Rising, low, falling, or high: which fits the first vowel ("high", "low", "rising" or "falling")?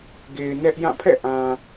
low